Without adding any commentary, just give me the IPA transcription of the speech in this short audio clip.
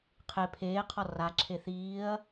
qʰe pʰeːqʰɔ raǁʰe θiːɐ̯

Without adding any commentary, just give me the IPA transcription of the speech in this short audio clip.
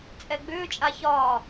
t͡sʼɛɡ͡bʏːt͡ʃʼa çɒː

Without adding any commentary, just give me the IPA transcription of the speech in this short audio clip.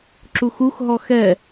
ǁuxuxɦɔ xɛ

